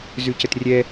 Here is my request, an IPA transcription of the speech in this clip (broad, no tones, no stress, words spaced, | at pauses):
zʉcətrʲɛ